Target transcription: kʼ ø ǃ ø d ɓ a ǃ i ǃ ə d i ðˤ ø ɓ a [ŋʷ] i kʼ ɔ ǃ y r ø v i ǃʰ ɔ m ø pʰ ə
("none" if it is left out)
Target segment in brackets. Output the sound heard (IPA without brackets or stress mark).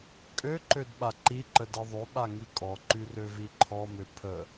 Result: ŋ